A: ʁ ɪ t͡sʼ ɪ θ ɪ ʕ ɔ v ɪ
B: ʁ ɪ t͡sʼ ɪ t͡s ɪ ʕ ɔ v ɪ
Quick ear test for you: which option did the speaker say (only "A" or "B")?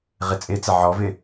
B